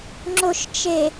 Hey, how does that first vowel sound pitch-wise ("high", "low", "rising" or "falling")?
low